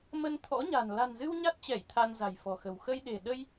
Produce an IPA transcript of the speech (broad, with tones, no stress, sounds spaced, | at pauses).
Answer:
m ə˧ n t̪ʰ ɔ̰˧˥ ɲ a̤˨˩ n l a̤˨˩ n z ɨ˧ w ɲ a˦˥ t̚ t͡ɕ ɛ˧˩ j t̪ʰ a˧ n z a̤˨˩ j f ɔ̤˨˩ x ə̤˨˩ w x ə˧ j ɗ e̤˨˩ ɗ ə˧ j